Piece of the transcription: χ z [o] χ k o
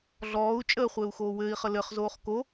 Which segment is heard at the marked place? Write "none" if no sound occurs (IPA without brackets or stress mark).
oː